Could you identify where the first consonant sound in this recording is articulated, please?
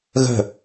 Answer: velar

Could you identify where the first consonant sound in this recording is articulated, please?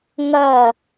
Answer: velar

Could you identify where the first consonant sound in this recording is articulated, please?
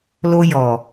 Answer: alveolar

